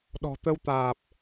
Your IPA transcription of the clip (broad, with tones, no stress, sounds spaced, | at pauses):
ɗ ɔ̤˨˩ t̪ ə˧ w t̪ aː˨˩ p̚